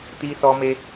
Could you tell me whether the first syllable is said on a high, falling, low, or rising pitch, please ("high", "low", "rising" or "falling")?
high